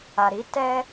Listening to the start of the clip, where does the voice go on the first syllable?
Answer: low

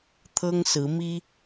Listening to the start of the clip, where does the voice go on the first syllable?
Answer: high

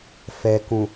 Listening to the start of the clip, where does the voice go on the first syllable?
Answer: low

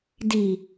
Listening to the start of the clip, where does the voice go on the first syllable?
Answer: low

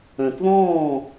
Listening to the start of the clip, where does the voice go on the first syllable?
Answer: low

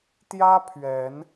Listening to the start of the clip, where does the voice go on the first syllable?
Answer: high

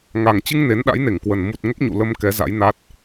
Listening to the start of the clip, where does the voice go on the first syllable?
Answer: low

